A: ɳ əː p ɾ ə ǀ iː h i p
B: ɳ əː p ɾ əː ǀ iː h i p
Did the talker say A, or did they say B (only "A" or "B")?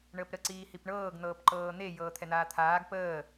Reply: A